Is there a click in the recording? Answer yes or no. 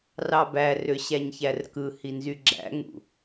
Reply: yes